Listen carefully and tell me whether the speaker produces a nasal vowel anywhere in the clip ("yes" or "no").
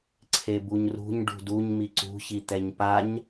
no